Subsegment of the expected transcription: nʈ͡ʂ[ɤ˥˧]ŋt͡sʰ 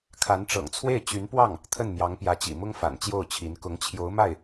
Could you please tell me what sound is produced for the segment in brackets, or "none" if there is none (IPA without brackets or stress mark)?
ɤ̰˨˩